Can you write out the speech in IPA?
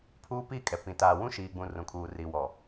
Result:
pʰ uː˦ p iː˦˨ kʼ ɛ˨ p ĩ˨ t aː˨ w ũ˦ ʃ iː˨ ɡ͡b ũ˨ r ũ˨ kʰ uː˨ r i˨ w ɔ˨

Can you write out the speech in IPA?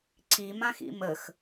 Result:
ǀ i m ã x ḭ m ə x

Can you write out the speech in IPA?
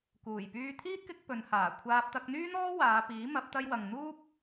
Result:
k uː˨˩ j p yː˧ t̪ʰ iː˥ t̚ k ɪ˧ k̚ p ɵ˨˧ n h aː˨˩ kʷʰ aː˧ p̚ t̪ ɐ˧ k̚ n̪ yː˥ n̪ ɔː˥ w aː˨˧ p iː˨˥ m ɐ˨˥ p̚ t̪ ɐ˧ j w ɐ˨ ŋ n̪ uː˥ p̚

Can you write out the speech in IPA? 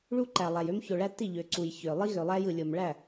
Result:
ɭ u˦ ǃ æ˨ lˠ æ˨ j ø˦ m ç o˨ ɭ æ˦ t i˦˨ ʎ ø˨ ǀ u˨ j ç ø˨ lˠ i˦ ɣ ø˨ lˠ æ˦ j ɯ˨ lʲ o˨ m ɭ æ˦˨

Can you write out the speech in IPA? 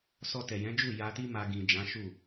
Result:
s ɔ˧ t ɛ˨ j ɛ̃˨˦ d͡ʒ u˦˨ j a˧ t i˦ m a˧ ɡ ĩ˨ d͡ʒ ã˨˦ ʃ u˦˨

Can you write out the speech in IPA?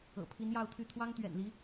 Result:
ɤ̰˨˩ pʰ i˧˥ n j ɑ˥˧ ʊ̯ t̪ʰ y˥˩ t̪ʰ w ɑ˥ ŋ t̪ ɥ ɛ̰˨˩ n l i˧˥

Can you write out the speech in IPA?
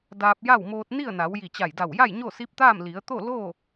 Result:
d aː˧ p̚ j a˥˨ w m oː˧ t̚ n i˥˨ ə̯ n a˩˧ w j i˧˩ t͡ɕ a˧˩ j d a˧˩ w j a˥˨ j ɲ o˥˨ s i˧˥ p̚ t̪ aː˥˨ m l i˩˧ ə̯ t̪ o˥˨ l oː˥˨

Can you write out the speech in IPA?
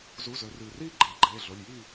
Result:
z u˩˧˩ z ɵ˩˧ r ʉː˩ r iː˥˨ ɡ͡ǃ eː˩ ɡ͡ǃ eː˩˧˩ ɮ o˩˧˩ lʲ j iː˥˨

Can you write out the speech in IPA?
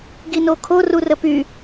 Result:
ɡ i n o kʰ o r u r ə p y

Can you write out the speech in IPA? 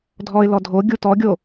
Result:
dʱ ɔ ɪ̯ l ɔ dʱ o ɡʲ u t ɔ ɡʲ o

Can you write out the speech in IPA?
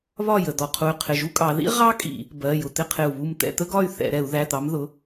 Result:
β ɒ˥˨ j ə˩˧˩ d̪ ɔ˧˩ qʰ u˧˩ y̯ qʰ ɪ˧˩ ʒ u˥ kʼ ɑ˨˦ ð ḭ˥ ʁ ɑ˥ kʼ ḭ˧˩˧ | b ɜ˩˧˩ j ʊ˧˩ t̪ ɪ˥˨ qʰ ɪ˧˩ u̯ β u˥˨ m t̪ ɛ̰˧˩˧ t̪ ə˥ ɡ ɒ˥˨ y̯ θ ɛ̰˧˩˧ ɾ ɛ˧˩˧ u̯ ð æ˩˧˩ t̪ ɑ˨˦ m ð ʊ˩˧˩

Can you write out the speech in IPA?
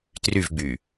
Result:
t r y v ɡ͡b y

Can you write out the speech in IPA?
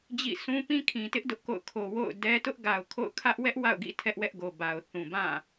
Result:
d͡ʑ ḭ˦˨ s ũ˦ p ĩ˦ kʰ ĩ˨ t ɪ˦ ʔ d ʊ˦ ʔ k o̰˦˨ ʊ̯ kʰ o˨ w o̰˦˨ ʊ̯ d ɛ˦ t ʊ˦ ʔ ɡ a˨ ʊ̯ kʰ o̰˦˨ ʊ̯ kʰ ä˦ ʔ w ɛ˦ ʔ w a̰˦˨ ʊ̯ ɡ ḭ˦˨ tʰ ɛ˦ ʔ w ɛ˦ ʔ ɡ o˨ b a˨ ʊ̯ θ ũ˨ b ã˦˨

